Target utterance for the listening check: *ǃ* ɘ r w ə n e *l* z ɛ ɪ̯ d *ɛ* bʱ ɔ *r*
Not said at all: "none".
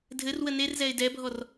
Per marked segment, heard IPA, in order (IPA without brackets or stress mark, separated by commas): dʱ, r, ɛ, r